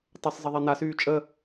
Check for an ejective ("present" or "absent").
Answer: present